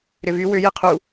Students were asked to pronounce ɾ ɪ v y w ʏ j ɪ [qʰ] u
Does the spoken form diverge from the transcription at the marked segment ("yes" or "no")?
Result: no